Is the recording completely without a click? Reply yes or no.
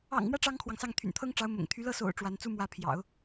yes